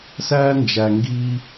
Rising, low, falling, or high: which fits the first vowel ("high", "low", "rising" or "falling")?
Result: high